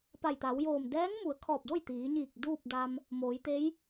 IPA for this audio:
p a˧˩ j t̪ a˩˧ w j oː˧˩ m d ɛː˧˥ ŋ m u˩˧ ə̯ kʰ ɔː˧˩ p̚ d o˥˨ j t̪ iː˩˧ ɲ iː˧˩ k̚ d uː˥˨ p̚ d a˧ m | m oː˩˧ j t̪ e˧˥ j

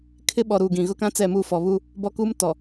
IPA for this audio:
kʰ ɪ˦ ɓ ɔ˨ ɾ uː˨ ɡ ĩ˨ ɣ ʊ˦ k ã˦ t͡s ɛ˦˨ m u˦˨ f ɔ˨ β u˦ | b ɔ˦ k u˦ m t ɔ˨

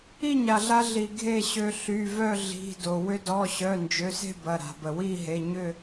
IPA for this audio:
i˥˨ ɲ a˩ ɮ a˧ ɮ i˩ ɡʱ e˥˨ ɕ ø˧ ɬ y˩˧˩ v œ˥˨ ɮ i̤˩˧˩ d o˩ w ʏ˧ d ɔ˩˧˩ ɕ œ˩˧˩ n d͡ʒ ø˩˧˩ s e̤˥˨ b ɐ˩˧˩ ɾ a̤˩ b ə˩ w i˥˨ ɦ e˩˧˩ ɲ ʏ˥˨

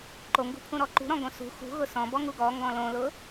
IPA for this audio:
ǃ o ŋ ɡ ṳ pʰ ũ ɾ ɔ ǃ ṳ ɾ ɔ̃ ɡ õ s ṳ x ṳ ɣ ʊ s ɔ̃ b ɔ ŋ u ɡ ɔ ŋ ɡ ɔ̃ l õ l ʊ

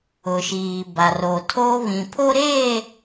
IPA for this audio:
ʊ˨ ʃ iː˨ b a˨ r o˨ tʰ o˦ β ĩ˨ pʰ o˦ ɾ eː˦˨

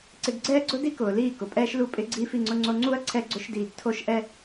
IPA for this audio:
ǀ ɪ˧ ɡ ɡ͡ǀ ɛː˦ ɡ͡ǀ ʊ˦ d i˦ k ʊː˨ l iː˦˨ k ʊ˨ pʼ ɛː˦ ʃ l u˦˨ pʼ ɪ˦ ɡ͡ǀ iː˦ f i˧ ŋ͡ǀ ʊ˦ ŋ͡ǀ o˦ ŋ͡ǀ u˦ ɐ̯ ǀʰ ɛ˦ ɡ͡ǀ ʊ˦ ʃ d iː˧ ɡ tʰ o˦ ʃ ʔ ɛ˦

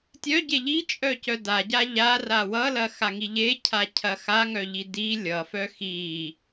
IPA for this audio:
tʲ œ ɟ e ʎ i t͡ʃʼ œ c œ d a ɟ a ʎ a r a w ʌ l ɐ x a ŋ i ʎ e cʰ a cʰ ɐ x a ŋ œ ʎ i d i lʲ ʌ f œ x i

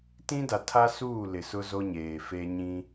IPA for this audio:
t ĩ˦ d a˨ tʰ a˦ s uː˦˨ l ɪ˨ s ʊ˦ z o˦ ɲ eː˨ f e˦ ɲ ĩ˦

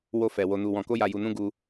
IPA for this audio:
w o˧ f ɛ˨ w o˧ n u˧ w ɔ̃˧ k o˦ j a˧ j u˧ n ũ˦ ɡ u˦

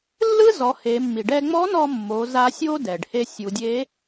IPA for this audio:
lː ɯ˥ z ɔ˩˧ h e˩˧ mː i˩ ɖ ɛ˧ ŋ͡m ɔ˧˥ n ɔ˧ mː o˩˧ z a˧˥ sʲ o˥ d ɛ˩ ɖ h e˧ sʲ u˩˧ dʲ e˧˥

